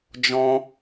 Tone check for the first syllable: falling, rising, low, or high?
high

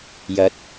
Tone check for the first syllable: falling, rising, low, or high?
rising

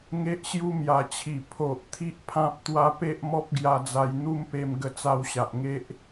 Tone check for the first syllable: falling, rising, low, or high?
high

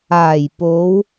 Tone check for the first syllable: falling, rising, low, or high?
low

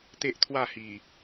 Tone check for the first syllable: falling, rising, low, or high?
high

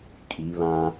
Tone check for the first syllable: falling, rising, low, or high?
rising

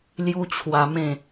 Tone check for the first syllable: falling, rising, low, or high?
high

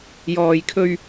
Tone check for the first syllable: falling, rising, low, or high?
low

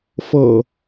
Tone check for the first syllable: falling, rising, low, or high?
low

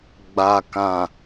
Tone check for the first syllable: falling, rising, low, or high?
low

